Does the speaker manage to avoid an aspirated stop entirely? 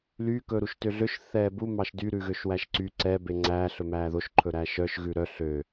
no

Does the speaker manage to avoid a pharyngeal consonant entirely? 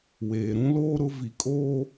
yes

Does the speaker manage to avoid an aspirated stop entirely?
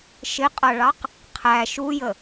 no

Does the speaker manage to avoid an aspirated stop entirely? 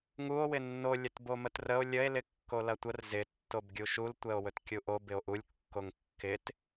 yes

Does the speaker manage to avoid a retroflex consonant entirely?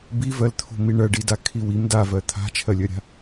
no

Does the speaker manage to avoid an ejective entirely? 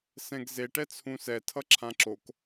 yes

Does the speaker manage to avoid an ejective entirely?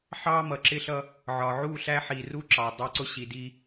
yes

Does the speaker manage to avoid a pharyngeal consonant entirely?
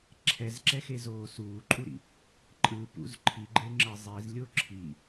yes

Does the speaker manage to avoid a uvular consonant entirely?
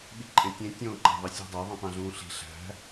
yes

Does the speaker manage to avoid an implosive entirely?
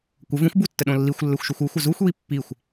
no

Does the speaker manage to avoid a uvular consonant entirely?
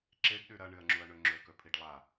yes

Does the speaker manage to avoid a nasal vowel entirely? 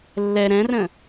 no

